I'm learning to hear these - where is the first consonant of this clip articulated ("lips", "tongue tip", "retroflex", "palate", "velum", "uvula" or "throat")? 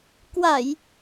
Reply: velum